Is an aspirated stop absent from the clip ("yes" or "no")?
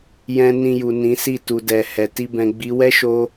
yes